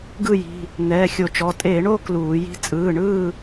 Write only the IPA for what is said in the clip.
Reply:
ɡ ɯ˥˨ j i̤˩˧˩ | n ɛː˩˧˩ xʲ o˧˩˧ t͡ʃ ɔ˩˧˩ tʼ e˧˩˧ ɳ o˥˨ k l uː˧˩˧ j i̤˥˨ t͡sʼ ɯː˩˧˩ ɳ ɯː˥˨

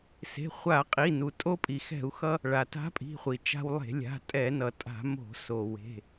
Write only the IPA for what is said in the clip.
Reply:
s e̤˩˧˩ χʷ a˧˩˧ qʼ i˩˧˩ n u˩ tʼ o˧ pʼ i˩ x ɛ̤˧˩˧ u̯ x ʌ˧ | ɭ a˩ t a̤˧˥ pʼ i̤˩˧˩ χʷ i˩ t͡ʃ a̤˧ w lˠ e̤˧˩˧ lʲ a̤˩˧˩ tʼ ɛ˧˩˧ n ʌ˩ tʼ a̤˧˩˧ m o̤˧˩˧ s o˩ w e̤˩˧˩

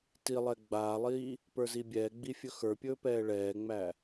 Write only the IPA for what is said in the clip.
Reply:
t i lˠ ɛ ɡ͡b aː lˠ iː | p ə˞ z i bʲ ɛː ɡ͡b i fʲ ɵ x ə˞ pʲ ɵː p ɛː ɭ ɛː ŋ͡m æ

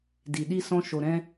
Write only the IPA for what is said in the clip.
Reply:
d i˨ ɗ i˧ s ɔ̃˧ ʃ o˨ ɾ ɛ̃˧

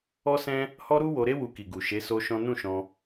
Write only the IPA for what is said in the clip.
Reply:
ɔ˦ s ɛ̃˦ | h ɔ˦ ɾ u˦ w o˧ ɾ e˦ w u˧ k i˨ ɡ u˨ ʃ e˨˦ s o˦ ʃ ɔ̃˦ n ũ˦˨ ʃ ɔ̃˧

